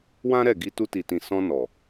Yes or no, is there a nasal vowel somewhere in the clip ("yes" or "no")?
yes